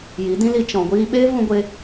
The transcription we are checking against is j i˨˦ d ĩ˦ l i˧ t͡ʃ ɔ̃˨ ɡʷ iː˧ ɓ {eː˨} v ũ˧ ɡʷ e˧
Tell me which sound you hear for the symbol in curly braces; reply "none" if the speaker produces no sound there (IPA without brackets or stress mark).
eː˦